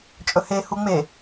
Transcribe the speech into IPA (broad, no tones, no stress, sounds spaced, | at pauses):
t͡ʃʼ ɵ h e h u ŋ͡m e